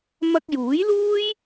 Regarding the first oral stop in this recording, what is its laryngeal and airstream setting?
plain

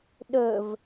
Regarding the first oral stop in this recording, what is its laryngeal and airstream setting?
implosive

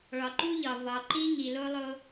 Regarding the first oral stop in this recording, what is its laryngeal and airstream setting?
click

